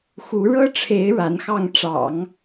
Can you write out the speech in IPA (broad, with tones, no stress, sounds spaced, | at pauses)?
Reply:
x u˧˥ ɻ ɤ˥ ʈ͡ʂʰ e˧˥ ɪ̯ ɻ a˧˥ n x ɑ˥˩ ŋ ʈ͡ʂ ɑ̰˨˩˦ ŋ